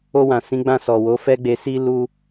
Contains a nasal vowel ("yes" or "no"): yes